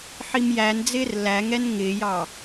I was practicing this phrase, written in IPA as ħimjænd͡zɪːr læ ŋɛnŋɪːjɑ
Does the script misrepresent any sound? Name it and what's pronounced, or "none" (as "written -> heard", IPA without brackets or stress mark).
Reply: none